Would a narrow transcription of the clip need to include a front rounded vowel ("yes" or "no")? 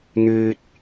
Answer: yes